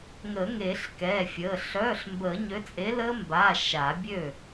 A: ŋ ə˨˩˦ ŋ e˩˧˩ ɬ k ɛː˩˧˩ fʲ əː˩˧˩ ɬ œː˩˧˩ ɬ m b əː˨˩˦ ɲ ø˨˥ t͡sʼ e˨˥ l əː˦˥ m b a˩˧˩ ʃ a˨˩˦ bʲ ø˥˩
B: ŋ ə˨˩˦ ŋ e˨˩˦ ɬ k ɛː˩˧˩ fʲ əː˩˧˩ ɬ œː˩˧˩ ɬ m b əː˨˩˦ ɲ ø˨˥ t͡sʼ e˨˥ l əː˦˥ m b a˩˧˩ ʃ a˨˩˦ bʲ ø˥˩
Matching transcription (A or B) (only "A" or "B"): B